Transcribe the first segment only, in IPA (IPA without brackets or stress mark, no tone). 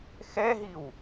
x